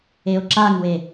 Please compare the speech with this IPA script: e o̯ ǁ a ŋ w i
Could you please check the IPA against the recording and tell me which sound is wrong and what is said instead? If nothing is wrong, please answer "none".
i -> e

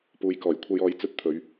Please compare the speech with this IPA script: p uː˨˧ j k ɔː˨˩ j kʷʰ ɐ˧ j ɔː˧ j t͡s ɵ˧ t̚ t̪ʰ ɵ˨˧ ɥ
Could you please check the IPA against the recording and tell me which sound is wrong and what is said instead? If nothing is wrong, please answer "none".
none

